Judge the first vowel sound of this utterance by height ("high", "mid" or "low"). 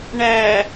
low